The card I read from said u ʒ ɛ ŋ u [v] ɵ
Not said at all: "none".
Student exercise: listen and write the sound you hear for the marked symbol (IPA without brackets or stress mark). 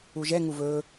v